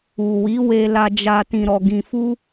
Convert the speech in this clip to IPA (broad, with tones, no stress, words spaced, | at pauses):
u˨wi˨˦ we˧la˧d͡ʒa˧ tĩ˧ɾɔ˧ɡĩ˧fu˦